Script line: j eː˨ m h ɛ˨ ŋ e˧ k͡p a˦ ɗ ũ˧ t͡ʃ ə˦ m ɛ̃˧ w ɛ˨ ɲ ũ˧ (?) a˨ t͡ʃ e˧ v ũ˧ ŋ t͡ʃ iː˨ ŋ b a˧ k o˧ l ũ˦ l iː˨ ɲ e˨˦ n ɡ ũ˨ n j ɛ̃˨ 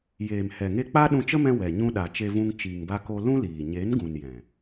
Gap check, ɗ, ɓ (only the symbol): ɗ